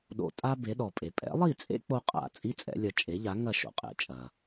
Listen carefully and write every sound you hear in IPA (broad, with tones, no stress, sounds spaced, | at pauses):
ɗ o̰˧ tʼ a˥ b e˩˥ ɗ ɔ˩ pʼ e˩ pʼ ɛ̰˩˥ lˠ i˥˩ t͡sʼ ḛ˥ k͡p o˥ qʼ a̰˥˩ t͡sʼ i˥ t͡sʼ ɛ̰˩˥ lʲ ɐ˩˥ t͡ʃʼ e˩˥ ʎ a˩˥ ŋ ɐ˥˩ ʃ o̰˧ qʼ ɛ̰˩˥ t͡ʃʼ ɐ˩